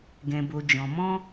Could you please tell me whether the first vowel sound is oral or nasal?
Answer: nasal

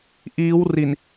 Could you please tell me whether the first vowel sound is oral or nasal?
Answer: oral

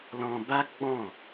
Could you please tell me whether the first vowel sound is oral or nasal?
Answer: nasal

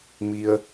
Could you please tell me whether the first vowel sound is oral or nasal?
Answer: oral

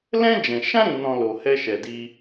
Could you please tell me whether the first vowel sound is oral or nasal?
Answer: nasal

